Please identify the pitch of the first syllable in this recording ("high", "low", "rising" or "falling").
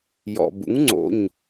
low